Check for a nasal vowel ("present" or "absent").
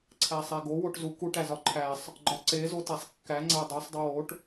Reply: absent